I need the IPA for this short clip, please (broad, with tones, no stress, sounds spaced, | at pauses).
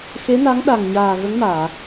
x e˧˥ n a˧˥ ŋ ɗ a˨˩ ŋ ɲ aː˨˩ ɣ ə˧˥ ŋ m aː˨˩˨